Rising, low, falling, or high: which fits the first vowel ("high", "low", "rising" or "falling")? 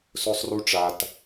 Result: high